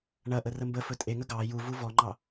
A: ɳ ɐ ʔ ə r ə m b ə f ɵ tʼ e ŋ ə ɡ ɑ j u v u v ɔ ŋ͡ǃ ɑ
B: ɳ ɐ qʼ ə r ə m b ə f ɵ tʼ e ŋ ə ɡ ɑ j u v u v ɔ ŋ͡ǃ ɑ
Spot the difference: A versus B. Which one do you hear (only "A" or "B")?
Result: A